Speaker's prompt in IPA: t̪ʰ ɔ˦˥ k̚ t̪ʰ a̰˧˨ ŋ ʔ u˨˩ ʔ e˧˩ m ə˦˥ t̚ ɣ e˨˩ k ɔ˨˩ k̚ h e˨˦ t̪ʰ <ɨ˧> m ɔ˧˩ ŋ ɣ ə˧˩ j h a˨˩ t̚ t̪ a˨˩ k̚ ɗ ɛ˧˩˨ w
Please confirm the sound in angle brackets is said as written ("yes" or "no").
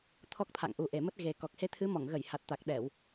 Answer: no